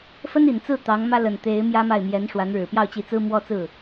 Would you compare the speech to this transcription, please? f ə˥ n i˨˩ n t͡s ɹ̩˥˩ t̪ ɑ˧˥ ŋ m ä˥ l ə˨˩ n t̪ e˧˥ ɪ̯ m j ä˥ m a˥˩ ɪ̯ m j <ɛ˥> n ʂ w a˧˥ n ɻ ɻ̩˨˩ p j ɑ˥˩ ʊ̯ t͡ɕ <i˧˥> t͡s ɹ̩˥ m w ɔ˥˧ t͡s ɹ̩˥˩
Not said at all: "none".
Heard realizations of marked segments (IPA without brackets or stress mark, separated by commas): ɛ˧˥, i˧˥